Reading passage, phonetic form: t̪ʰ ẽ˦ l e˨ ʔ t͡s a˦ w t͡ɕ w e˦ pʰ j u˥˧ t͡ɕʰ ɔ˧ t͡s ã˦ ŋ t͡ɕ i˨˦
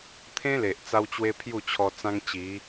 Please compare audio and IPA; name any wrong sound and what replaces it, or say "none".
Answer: none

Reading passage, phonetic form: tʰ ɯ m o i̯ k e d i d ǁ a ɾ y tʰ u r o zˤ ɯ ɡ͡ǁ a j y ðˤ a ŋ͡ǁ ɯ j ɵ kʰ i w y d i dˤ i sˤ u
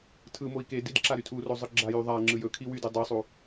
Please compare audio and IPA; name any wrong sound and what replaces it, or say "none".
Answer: none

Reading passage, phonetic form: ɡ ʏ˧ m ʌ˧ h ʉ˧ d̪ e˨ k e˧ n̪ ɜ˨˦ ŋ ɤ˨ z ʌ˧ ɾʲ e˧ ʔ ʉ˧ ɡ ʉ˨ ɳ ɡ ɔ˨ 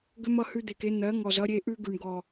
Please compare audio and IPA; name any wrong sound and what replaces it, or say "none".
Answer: ɤ˨ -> ɔ˨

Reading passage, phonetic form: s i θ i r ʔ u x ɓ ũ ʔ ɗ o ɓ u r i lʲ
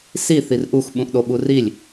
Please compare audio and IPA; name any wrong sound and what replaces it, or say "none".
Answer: none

